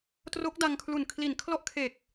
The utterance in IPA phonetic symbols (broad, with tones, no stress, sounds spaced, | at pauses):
t r o˦˥ k̚ d a˧ ŋ kʰ l u˨˩ n kʰ l i˩˦ n kʰ l ɔ˦˥ ʔ kʰ e˨˩ k̚